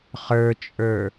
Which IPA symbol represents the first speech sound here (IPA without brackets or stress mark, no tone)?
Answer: χ